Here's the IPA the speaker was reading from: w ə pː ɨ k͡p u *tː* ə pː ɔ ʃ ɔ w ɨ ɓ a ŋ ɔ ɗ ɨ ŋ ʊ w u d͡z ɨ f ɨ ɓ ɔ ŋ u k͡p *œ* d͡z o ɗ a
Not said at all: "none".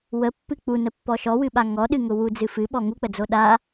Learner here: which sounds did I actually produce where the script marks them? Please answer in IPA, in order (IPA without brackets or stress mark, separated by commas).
n, ə